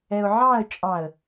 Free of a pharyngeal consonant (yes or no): no